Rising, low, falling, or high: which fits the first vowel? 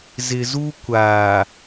low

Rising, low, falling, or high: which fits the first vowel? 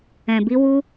low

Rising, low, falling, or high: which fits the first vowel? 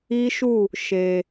high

